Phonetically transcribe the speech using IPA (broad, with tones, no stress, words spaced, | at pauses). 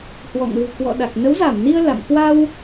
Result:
hwɔ̰˧˨ŋlɨ̤˨˩ kwɔ̰˧˨ɗa˨˩k̚ nə˨˦wza˧˩mni˧ə̯ la̰˧˨m kwa˧w